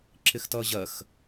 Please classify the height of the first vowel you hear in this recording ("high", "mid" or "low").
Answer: high